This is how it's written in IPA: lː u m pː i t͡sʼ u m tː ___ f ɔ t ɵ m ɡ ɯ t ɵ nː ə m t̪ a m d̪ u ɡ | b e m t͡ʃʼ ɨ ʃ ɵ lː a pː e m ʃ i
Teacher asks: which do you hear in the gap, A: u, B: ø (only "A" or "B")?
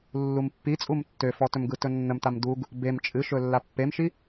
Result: B